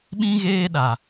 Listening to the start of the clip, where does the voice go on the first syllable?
high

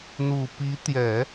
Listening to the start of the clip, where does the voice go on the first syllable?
low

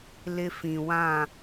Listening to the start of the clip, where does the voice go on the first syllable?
high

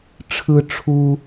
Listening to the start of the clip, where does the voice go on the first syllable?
high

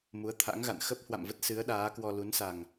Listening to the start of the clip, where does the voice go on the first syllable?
rising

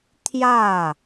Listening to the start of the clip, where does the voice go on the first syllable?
falling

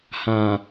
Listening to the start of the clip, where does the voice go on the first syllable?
low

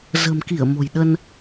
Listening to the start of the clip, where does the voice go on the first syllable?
low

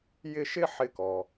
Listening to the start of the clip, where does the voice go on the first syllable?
high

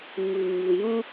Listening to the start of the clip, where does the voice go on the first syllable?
low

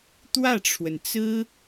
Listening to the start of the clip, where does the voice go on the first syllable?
falling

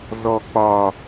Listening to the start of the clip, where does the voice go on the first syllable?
low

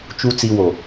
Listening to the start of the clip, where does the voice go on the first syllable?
low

